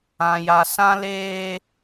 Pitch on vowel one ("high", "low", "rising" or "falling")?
low